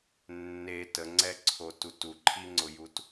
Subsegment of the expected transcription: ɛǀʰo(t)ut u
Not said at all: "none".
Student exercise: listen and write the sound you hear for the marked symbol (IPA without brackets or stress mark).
t